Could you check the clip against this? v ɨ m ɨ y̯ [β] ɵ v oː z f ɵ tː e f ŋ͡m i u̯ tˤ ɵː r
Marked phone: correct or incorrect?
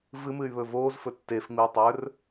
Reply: correct